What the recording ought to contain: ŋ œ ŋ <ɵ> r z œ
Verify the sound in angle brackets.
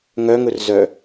correct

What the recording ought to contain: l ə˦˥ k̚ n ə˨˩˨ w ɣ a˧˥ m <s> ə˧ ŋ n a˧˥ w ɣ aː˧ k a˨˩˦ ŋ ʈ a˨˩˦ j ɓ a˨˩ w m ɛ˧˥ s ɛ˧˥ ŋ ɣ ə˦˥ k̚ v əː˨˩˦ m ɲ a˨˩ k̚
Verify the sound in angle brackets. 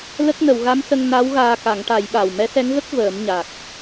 correct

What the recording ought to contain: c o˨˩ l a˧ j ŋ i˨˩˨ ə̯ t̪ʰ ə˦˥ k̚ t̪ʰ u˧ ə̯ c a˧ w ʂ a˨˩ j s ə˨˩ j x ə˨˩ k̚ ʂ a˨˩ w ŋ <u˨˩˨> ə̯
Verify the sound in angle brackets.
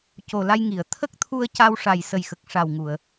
correct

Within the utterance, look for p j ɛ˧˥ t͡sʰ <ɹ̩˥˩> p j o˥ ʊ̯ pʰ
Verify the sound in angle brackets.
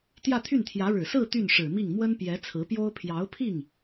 incorrect: ɹ̩˧˥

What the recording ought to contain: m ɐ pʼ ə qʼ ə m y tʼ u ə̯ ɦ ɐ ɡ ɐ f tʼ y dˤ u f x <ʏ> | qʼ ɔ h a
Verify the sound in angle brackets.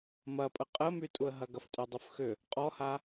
correct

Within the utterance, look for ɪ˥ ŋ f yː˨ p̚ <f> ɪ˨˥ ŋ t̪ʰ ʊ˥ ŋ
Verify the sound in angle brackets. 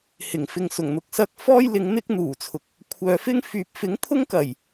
correct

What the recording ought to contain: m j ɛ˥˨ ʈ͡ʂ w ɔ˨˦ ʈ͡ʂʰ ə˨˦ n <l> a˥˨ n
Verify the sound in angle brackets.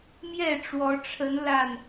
correct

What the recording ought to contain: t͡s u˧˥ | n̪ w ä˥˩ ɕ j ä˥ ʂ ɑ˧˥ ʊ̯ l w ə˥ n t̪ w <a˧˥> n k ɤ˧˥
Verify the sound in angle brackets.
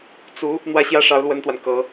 incorrect: a˨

